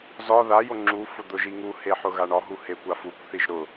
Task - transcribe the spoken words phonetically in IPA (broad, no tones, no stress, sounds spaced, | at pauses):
z ɒ ð a j o ŋ͡ǁ u f ʊ d̪ ʊ ʒ i ŋ u h e ħ ʊ ɣ a ɳ ɒ ɦ u h e kʷ a f u kʷ θ i ʒ ɾ ʊ